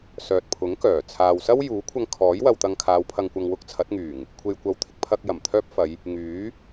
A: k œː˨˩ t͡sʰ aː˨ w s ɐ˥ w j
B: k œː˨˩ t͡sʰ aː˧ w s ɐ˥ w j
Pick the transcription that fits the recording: A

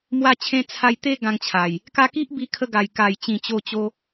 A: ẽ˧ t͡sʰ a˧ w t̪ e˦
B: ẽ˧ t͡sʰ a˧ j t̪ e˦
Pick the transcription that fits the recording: B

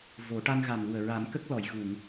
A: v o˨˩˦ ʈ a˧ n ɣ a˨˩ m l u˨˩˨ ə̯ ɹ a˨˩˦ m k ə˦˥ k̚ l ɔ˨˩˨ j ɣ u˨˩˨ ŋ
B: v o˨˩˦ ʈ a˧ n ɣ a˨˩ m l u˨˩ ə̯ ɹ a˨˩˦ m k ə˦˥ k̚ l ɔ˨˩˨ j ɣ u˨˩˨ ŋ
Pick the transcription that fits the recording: B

